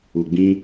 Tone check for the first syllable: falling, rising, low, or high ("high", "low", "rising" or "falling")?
low